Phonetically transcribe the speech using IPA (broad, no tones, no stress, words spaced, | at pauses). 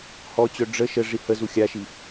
hɔt͡ɕœ ɖ͡ʐə ʃə ʐihəzu xʲaʃi